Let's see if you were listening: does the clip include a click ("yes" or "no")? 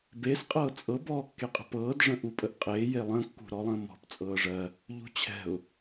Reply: no